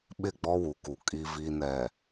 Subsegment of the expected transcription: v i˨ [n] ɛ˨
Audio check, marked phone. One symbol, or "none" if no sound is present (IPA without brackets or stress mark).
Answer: n